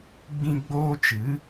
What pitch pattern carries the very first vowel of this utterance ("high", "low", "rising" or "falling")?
high